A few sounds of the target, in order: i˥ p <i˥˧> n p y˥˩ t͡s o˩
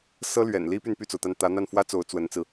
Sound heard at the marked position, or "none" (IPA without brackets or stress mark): y˥˧